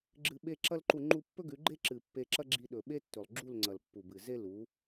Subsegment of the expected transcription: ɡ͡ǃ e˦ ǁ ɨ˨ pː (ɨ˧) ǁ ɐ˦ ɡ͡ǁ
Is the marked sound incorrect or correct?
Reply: incorrect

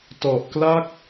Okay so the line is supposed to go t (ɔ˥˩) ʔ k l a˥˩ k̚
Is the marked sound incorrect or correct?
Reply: incorrect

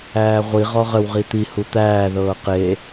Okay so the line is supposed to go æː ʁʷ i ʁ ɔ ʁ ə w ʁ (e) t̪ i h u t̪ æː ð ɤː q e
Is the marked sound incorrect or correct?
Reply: incorrect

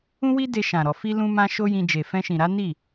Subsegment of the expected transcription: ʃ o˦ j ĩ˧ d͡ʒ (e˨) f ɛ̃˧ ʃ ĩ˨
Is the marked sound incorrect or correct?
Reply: correct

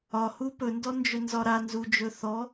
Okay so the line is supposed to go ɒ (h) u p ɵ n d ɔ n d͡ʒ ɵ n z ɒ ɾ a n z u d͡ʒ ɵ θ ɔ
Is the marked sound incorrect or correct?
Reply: correct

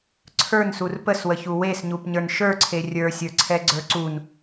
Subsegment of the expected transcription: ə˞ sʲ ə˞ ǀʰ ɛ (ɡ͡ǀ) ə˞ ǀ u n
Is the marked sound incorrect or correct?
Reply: correct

